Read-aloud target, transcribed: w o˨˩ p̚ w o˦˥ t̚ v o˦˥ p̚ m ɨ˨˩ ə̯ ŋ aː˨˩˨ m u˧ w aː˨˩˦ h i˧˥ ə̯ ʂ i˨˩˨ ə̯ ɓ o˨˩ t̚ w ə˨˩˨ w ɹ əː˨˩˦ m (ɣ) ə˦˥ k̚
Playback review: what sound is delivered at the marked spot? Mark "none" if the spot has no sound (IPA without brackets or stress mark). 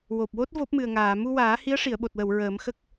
x